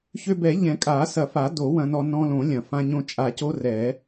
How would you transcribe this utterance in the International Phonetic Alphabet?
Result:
ç ø˧ b ɛ˨˩˦ ʎ ɛ̃˨˩˦ kʼ a˨˩˦ s ɐ˨˩˦ f a˨˩˦ d o˨˩˦ w ɐ̃˧ n ɔ˧ n ɔ̃˧ l õ˨˩˦ lʲ ɐ̃˨˩˦ f ã˧ ɲ õ˧ t͡ʃʼ a˨˩˦ c o˧ r ɛ˨˩˦

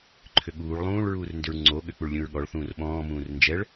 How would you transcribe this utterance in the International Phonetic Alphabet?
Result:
ǃʰ ʏ ɠ uː ɭ lˠ ũː ɭ ɹ uː r n d ʏ ɹ ŋ͡ǀ o ɠ ʏ k͡p u ɭ lʲ ũ ɹ ɠ ɔ ɭ θ ũː r ɓ ɔ̃ː m ũː r n d͡ʒ ɛ ɭ

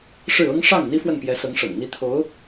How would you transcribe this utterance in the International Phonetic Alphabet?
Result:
ʂ ɻ̩˥˩ ɤ˥ ŋ ʂ ɑ˥˩ ŋ n̪ i˥ f w ə˥˩ n p j ɛ˧˥ s ɤ˧˥ ŋ ʂ ɤ̰˨˩ ŋ n̪ i˧˥ t̪ʰ o˧˥ ʊ̯

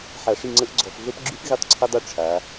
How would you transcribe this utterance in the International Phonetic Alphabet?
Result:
ħ a˧˩˧ ʂ i˦˨ ŋ͡ǀ ə˦˥ ʔ ɡ͡ǀ ɔ˧˩˧ f ɮ o˦˥ p ɡ͡ǁ y˦˥ f ɣ i˦˥ tˤ ǀʰ ə˦˥ dˤ y˦˨ ʈ͡ʂʰ a˩˧

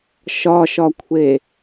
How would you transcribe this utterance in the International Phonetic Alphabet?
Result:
ʃ ɒ ʃ ɒ kʷʰ e

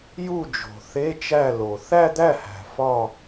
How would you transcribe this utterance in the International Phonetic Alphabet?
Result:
j u˥˩ d͡ʒ o̤˨˩ θ e˧˥˧ t͡ʃ æ˥˩ l o˨˩ θ æ˥˧ d̪ æ˥˩ h æ̤˨˩ f ɒ˥˧

